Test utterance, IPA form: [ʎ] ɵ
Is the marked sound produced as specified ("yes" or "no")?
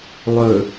no